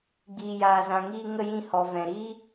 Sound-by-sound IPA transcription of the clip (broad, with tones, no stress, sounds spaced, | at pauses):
ɡ͡b iː˨ j aː˨ z ã˨ ŋ iː˧ ŋ ə˧ j ĩ˧ h ɔ˨ v ɛ̃˨ ɾ iː˦